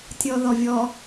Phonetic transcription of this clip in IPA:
tʲɔðɔvʲɔ

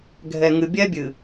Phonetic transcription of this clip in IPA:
ɡʱɛ˨ŋɨ˨ bʲɛ˦bʲɨ˨

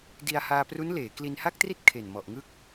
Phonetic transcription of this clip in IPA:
di˧a̯haː˧pru˦˥nleː˩˦ kli˧nha˥˩k̚tri˥˩t̚ kʰe˨˩nmɔ˨˩ʔŋɯ˦˥k̚

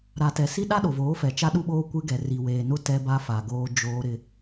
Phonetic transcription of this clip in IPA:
ɾa˨tɛ˨si˦ ɗa˦ɗo˨voː˨˦ fɛ˨t͡ʃa˦ɗu˦ɓoː˦ kʷɪ˦ɡɛ˨ ri˨weː˨nʊ˦ tɛ˦ba˦fa˨ɡoː˦ d͡ʒoː˦ɾɪ˦

